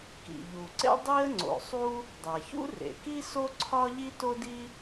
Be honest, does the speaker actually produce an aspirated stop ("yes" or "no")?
yes